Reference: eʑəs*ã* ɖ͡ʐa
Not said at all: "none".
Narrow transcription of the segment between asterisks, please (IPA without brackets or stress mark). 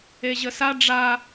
a